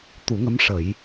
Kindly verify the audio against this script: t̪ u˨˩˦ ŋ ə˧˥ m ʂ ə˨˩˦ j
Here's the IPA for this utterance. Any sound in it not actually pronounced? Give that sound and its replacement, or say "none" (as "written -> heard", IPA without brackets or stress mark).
none